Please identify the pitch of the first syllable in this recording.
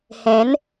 rising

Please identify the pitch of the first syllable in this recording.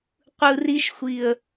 low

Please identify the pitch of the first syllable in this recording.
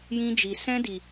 high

